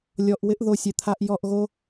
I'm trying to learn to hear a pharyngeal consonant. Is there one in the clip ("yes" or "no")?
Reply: no